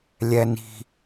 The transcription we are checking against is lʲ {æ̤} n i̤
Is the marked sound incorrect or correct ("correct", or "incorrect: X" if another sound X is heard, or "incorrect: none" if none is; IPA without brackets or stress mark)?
incorrect: æ